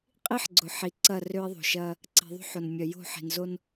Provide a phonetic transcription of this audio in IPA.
qʼ i˦ ħ ɡ͡ǀ ʊ˨ ħ i˨ ǀ ɐ˦˨ r ø˦ e̯ ðˤ o̤˨ ʃ ɐ˦ | ǀ i̤˨ ðˤ o̤˦ ħ o˨ n mʲ œ˨ j o̤˦˨ ħ i̤˨ n z o˦ n

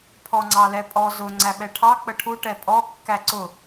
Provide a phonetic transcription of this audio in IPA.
pʰ ɔ ŋ͡ǀ ɑ l ɛ pʼ ɔ z ʊ ŋ͡ǀ æ ɓ ɛ ʈʰ ɑ k͡p ə ʈʰ u ʈ ɛ pʼ ɔ kː æ ǀ ʊ

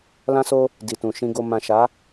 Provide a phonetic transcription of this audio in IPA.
l ã˧ s o˧ | d i˨ t ũ˨ ʃ ĩ˧ ɡ o˧ m ã˨ ʃ a˨˦

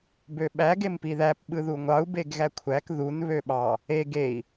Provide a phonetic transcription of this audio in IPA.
b ø ɓ æ ɡ e m p i ð æ p ɓ ɯ ð u ŋʷ ɑ u̯ b e ɡ ɣ æ kʷʰ æ k ð u n β ø ɓ ɑ | e ɡ e i̯

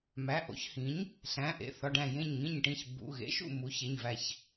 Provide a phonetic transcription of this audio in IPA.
m æ˩˧˩ ʔ o̰˩˥ ç h ĩ˩˥ ɲ | ɬ æ̃˩˧˩ ʔ ḛ˩˧˩ θ ɒ˩˧˩ ɖ æ̃˧˩ j ẽ˧˩ ɲ ŋ ĩ˧˩ ɲ ʈ ĩ˧˩ ç b ṵ˩˧˩ ɣ ḛ˩˥ ʃ ṵ˧˩ m u˩˥ ç e˩˧˩ ɲ v æ˧˩ ç

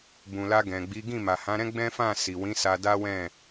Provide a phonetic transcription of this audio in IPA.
b ũ˨ l a˧ ɡ ɛ̃˨ ɡ͡b i˨˦ ɡ ĩ˦˨ m a˨ h ã˨˦ ɾ ɛ̃˦ ɡ͡b ɛ̃˦ f ã˦˨ s i˨ w ĩ˨˦ s a˧ d a˦ w ɛ̃˦˨

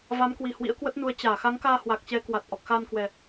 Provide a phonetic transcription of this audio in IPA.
v a˨˦ m k w i˨˩ h w ḭ˧˥ ə̯ k w ə˦˥ t̚ n u˨˦ ə̯ t͡ɕ aː˧˩ x a˨˦ ŋ k aː˧ h w a˨˩ k̚ t͡ɕ ɛ˨˦ k w a˨˩ t̚ ʔ ɔ˨˩ k̚ x aː˧ n k w ɛ˨˩

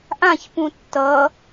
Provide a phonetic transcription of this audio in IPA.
ʔ ã ç p ũ tː ʌ

